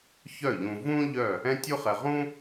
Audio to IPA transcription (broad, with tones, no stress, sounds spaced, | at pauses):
ç œ˥˩ ʎ ũ˧ v ũ˥ ʎ œ˥˩ | ɛ̃˥ tʲ u˥ χ ɛ˧ ʁ ũ˥